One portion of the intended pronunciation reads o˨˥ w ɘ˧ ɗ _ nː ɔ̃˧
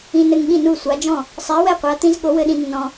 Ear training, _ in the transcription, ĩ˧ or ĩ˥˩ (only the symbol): ĩ˧